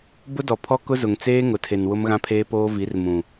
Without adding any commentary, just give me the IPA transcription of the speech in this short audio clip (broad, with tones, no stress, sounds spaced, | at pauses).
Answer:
b ʊ˦ d ɔ˨ pʰ ɔ˦ k ʊ˦ z ʊ˨ ŋ t͡s eː˦ ŋ ʊ˨ tʰ e˨ n w ʊ˦ m ɣ ã˦ pʰ eː˦ p oː˦ v i˨˦ r m ũ˨